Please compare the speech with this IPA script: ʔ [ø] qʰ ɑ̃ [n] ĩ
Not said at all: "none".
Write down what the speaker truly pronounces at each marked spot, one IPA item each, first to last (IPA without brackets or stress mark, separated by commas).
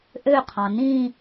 ø, n